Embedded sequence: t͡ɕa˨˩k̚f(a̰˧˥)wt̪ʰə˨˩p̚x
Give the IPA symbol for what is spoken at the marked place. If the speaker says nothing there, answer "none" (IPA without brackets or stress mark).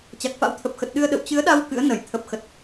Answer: a̰˧˥